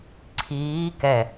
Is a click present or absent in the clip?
present